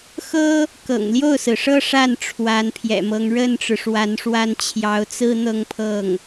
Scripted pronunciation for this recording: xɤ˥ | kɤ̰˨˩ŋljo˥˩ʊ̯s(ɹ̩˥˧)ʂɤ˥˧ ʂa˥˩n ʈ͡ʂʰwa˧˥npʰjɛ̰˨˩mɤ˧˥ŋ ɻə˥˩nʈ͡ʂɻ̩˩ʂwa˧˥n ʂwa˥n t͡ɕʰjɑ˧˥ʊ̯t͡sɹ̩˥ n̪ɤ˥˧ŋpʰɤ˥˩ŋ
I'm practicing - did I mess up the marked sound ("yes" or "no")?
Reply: yes